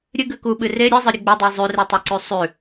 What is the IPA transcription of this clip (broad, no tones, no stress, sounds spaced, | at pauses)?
ɾʲ ɨ ɡ ʉ k u ɓ ɨ r e ɾʲ ɨ zˤ ɨ ɾʲ ɨ ɡ͡b ɵ dˤ i zˤ ʉ r i tˤ ɵ ǀ ʉ sˤ ʉ